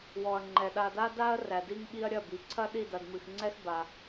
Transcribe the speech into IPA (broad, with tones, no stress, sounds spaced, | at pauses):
w ɔ˨ ɐ̯ ŋ͡ǃ ɛ˨ ɗ a˨ d a˦ d a˦ ɐ̯ r æ˨ d i˦ ŋ ɓ i˦ ɐ̯ ɾʲ ɐ˦˨ b i˨ ǀʰ ɐ˦ ɗ i˦˨ d ɐ˨ d m ɨ˨ x ŋ͡ǀ ɛ˦ x b a˨